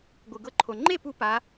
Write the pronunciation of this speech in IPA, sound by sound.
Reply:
ɡʷɯ˧ɡɤ˥ǃʰo˧ ŋ͡ǃe˥˨pu˧ pa˧˥

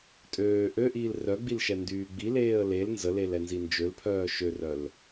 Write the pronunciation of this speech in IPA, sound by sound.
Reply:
tʼøː ʔøʔiːl rœɡ͡bilʃɛ ndyːɡ͡bi leːə̯lel nzəlelɛnzi nd͡ʒølpʰœː ʃørœl

